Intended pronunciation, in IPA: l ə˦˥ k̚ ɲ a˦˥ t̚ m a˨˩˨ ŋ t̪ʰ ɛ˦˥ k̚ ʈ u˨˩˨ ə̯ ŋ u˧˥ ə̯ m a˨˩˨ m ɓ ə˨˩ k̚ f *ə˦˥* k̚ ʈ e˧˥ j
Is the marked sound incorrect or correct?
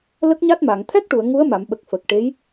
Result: incorrect